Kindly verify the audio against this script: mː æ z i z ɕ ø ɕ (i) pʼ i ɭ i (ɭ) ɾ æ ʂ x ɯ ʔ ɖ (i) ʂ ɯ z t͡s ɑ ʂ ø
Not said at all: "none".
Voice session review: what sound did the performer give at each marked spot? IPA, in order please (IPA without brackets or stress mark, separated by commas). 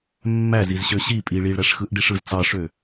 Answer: i, ɭ, i